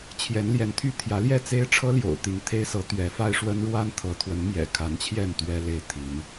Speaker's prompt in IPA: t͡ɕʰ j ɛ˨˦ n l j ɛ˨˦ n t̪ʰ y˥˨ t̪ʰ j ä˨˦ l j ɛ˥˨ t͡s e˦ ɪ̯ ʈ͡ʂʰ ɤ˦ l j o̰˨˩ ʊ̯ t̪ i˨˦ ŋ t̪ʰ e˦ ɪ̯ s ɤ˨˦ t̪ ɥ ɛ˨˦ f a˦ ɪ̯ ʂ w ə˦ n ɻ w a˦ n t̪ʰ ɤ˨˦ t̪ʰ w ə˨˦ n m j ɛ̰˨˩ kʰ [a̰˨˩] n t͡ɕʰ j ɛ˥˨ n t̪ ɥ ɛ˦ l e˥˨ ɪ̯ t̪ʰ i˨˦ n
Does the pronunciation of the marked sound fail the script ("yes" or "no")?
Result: yes